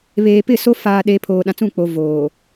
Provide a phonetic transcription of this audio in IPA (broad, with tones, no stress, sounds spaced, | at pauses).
β eː˨ p ɪ˦˨ s o˦ f aː˨ ɗ e˨ pʰ oː˨ ɗ ã˨ t͡s ũ˦˨ k͡p o˨ v oː˨